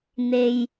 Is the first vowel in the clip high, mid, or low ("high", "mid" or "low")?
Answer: mid